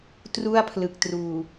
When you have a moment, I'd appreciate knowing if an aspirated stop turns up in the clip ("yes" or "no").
yes